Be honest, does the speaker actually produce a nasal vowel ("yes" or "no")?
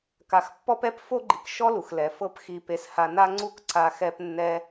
no